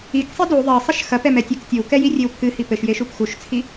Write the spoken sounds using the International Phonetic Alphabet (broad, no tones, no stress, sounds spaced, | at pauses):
i k sˤ i d u ðˤ e sˤ ɘ ʃ x ɐ p ɛ m ɛ tʲ ɨ k tʲ o w k ɛ j i rʲ e w pʰ ɨ h i p ɘ ʃ j e ʃ u p x u ʃ t͡sʰ i